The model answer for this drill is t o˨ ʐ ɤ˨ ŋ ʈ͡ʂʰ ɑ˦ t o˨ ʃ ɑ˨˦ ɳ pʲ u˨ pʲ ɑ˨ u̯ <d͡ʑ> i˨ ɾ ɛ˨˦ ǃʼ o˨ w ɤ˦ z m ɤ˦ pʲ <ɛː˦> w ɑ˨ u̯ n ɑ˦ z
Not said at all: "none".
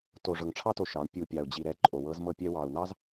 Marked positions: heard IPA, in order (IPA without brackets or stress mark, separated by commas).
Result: d͡ʑ, ɛ˦